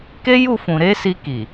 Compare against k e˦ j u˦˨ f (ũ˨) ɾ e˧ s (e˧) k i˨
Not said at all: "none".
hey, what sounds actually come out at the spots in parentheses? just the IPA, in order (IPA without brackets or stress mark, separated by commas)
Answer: ũ˨, i˧